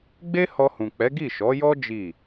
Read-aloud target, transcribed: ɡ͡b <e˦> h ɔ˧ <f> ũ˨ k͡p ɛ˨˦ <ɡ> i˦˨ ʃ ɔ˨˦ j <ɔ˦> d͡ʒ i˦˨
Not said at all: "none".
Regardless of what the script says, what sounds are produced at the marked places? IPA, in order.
e˦, h, ɡ, ɔ˦

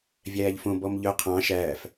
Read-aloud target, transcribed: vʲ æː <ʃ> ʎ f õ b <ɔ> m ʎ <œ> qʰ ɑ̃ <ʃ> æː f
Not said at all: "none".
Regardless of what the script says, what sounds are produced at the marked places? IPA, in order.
none, ɔ, œ, ʃ

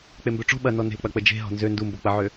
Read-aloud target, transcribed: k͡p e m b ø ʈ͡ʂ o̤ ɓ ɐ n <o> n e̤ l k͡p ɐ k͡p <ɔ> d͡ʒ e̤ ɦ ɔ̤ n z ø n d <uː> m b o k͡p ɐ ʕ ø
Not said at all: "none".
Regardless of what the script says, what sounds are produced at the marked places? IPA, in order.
ɔ, ə, u

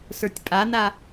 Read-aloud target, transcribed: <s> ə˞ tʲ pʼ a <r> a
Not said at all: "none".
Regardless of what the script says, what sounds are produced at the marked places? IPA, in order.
s, n

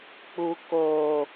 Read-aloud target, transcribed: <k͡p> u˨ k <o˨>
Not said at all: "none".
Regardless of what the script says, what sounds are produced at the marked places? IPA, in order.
k͡p, o˨

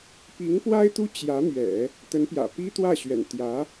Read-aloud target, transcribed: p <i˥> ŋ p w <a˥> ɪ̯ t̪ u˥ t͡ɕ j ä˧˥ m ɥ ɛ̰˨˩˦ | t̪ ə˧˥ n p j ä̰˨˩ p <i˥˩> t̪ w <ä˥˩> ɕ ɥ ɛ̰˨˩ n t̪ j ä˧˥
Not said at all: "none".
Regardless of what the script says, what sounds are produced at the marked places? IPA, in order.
i˧˥, a˥, i˥, ä˥˩

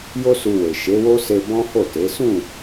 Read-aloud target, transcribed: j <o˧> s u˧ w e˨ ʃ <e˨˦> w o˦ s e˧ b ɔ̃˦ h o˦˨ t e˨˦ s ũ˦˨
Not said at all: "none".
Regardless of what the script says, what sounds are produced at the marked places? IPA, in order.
o˦, e˨˦

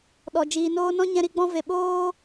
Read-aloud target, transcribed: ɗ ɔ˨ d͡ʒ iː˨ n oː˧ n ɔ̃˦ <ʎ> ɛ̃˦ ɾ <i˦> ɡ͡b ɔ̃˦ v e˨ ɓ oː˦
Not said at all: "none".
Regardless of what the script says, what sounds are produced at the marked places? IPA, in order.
ɲ, i˦

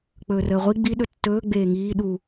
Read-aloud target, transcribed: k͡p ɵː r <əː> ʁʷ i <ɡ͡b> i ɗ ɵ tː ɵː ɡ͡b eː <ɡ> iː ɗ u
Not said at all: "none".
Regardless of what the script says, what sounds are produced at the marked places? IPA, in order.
əː, ɡ͡b, ŋ

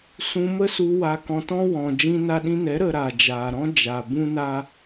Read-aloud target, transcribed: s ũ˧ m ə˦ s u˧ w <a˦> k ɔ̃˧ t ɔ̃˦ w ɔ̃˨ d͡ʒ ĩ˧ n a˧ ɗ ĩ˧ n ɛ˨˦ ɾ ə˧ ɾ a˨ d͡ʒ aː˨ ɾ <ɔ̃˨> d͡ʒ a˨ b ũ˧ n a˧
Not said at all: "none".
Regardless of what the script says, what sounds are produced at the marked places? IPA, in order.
a˧, ɔ̃˦

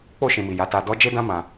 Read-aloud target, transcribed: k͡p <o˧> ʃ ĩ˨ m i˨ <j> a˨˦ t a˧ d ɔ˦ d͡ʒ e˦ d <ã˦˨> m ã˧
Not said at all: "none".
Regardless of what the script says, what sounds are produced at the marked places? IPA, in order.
o˧, j, ã˦

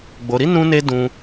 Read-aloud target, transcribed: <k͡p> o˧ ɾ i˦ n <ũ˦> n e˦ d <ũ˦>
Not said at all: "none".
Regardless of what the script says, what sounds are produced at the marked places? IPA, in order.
ɡ͡b, ũ˦, ũ˦

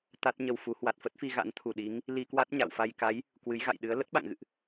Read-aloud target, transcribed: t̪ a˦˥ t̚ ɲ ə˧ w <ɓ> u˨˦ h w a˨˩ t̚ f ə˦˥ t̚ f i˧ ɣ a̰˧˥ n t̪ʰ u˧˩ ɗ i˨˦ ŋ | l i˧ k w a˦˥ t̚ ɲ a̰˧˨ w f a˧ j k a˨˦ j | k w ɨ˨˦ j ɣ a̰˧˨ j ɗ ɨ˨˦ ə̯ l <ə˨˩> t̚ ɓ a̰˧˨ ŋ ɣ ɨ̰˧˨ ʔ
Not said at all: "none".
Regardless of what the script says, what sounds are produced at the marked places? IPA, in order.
f, ə˦˥

